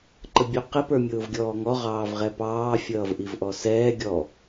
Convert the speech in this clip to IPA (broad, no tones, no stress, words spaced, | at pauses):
ǃəbʲuqɪ pə˞mʲʊːvɡʲɔːŋɔ ʁɑːvʁɛpɑː fʲʌːvʔivʔɔsɛː ɡʲɔ